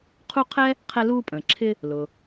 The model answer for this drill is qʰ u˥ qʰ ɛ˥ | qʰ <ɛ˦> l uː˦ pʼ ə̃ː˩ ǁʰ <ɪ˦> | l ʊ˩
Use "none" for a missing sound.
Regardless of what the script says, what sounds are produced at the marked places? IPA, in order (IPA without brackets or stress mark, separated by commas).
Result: ɛ˦, ɪ˦